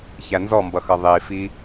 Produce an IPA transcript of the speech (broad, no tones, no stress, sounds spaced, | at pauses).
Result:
ç æ n z ɔ m b ʌ x ʌ ðˤ i f i